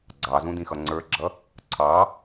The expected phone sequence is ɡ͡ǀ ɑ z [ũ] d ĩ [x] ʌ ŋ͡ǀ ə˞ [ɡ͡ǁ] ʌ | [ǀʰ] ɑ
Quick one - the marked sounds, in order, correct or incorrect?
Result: correct, correct, correct, correct

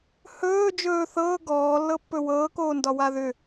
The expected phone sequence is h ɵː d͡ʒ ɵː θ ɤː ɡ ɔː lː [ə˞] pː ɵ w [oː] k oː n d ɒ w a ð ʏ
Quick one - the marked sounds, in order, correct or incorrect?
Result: incorrect, incorrect

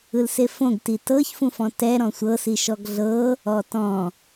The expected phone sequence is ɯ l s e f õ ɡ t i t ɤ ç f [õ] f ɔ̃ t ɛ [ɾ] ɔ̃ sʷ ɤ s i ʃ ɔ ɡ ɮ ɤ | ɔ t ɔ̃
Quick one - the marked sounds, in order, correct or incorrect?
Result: incorrect, correct

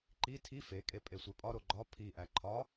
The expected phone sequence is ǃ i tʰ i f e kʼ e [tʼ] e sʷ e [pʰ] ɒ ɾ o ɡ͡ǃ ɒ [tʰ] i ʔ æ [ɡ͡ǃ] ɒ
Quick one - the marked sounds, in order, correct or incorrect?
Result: incorrect, incorrect, incorrect, incorrect

